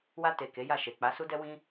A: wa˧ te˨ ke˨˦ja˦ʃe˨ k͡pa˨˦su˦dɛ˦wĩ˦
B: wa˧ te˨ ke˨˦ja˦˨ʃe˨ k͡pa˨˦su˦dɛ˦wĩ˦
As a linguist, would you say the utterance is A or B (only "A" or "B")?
B